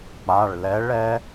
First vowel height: low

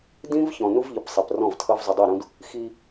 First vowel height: high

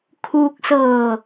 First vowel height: high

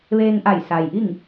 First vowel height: mid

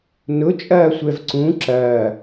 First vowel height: high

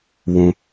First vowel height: high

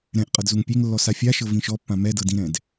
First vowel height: mid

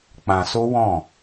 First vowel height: low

